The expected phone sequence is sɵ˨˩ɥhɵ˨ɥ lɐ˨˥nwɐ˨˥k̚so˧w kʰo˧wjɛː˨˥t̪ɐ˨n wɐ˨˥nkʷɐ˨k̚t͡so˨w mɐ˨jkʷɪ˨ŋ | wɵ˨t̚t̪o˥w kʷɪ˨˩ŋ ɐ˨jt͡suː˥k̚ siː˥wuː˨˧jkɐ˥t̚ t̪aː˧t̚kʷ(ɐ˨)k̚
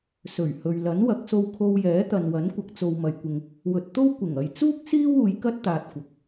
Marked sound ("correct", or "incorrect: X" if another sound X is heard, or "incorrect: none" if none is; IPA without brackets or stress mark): correct